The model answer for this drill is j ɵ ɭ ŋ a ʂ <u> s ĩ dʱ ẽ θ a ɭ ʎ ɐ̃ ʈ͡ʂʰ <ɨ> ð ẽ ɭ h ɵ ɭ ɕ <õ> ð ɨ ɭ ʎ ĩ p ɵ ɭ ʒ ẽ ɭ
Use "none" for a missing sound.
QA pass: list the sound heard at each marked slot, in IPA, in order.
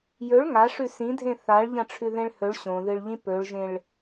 ʉ, ʉ, õ

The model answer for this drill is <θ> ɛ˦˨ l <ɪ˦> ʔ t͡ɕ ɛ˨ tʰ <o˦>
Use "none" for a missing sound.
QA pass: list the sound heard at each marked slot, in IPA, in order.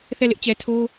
θ, ɪ˦, o˦

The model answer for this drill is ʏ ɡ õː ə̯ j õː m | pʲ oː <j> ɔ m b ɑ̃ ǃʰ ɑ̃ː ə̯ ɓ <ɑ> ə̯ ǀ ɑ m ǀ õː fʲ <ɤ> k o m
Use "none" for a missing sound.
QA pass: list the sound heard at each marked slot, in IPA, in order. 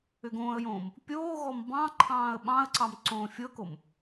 ɣ, ɑ̃, ɤ

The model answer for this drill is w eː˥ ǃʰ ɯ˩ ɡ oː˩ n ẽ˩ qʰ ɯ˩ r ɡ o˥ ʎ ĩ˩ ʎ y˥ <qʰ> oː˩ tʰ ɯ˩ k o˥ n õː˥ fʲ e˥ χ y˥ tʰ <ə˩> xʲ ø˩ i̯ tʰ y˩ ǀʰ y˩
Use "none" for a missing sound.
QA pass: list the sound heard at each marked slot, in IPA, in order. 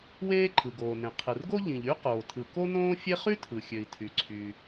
q, ɯ˩

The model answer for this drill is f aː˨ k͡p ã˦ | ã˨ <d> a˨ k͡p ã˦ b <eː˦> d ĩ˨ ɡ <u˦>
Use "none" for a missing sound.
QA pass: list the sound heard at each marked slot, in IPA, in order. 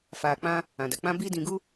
d, iː˦, u˦

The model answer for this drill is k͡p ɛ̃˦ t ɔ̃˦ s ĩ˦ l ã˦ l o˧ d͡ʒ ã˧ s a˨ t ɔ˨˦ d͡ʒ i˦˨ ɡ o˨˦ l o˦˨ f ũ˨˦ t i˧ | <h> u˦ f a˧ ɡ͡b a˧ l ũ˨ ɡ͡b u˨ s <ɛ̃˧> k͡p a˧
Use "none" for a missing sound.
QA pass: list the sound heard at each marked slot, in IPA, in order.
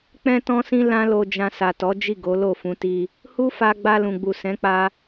h, ɛ̃˨˦

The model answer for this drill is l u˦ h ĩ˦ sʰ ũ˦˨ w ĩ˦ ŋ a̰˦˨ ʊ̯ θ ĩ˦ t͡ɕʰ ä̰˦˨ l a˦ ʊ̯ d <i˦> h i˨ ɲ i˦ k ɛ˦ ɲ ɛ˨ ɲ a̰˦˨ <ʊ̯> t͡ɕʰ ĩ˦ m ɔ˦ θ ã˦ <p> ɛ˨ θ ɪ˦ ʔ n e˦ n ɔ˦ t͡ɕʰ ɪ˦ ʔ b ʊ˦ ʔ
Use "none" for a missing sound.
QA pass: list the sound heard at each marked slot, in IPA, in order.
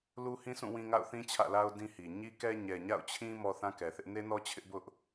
ĩ˦, ʊ̯, k

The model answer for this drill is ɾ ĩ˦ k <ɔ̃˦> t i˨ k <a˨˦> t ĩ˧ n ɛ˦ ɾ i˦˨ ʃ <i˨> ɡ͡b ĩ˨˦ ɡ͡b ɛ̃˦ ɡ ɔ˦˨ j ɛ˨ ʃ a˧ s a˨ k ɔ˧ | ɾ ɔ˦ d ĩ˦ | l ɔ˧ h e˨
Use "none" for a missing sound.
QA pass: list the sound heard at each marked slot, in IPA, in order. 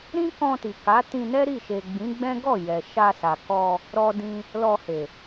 ɔ̃˧, a˨˦, e˨

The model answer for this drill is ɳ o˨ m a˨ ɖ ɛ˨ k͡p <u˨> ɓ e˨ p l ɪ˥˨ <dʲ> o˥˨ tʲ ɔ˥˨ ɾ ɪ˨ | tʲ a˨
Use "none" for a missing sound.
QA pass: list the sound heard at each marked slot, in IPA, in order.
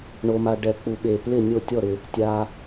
u˨, nʲ

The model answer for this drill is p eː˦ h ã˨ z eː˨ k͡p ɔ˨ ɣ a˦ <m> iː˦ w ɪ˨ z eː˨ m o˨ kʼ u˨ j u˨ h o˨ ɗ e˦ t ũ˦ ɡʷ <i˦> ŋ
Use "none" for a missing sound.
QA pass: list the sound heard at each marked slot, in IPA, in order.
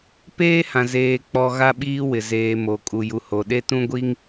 ɓ, i˦

